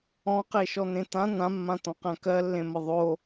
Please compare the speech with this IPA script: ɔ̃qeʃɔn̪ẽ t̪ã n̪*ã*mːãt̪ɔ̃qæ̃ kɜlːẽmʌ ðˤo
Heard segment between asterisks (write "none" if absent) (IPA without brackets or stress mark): ã